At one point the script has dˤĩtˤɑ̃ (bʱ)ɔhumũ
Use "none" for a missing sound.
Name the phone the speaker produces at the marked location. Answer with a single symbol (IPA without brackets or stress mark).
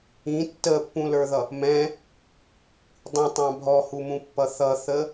bʱ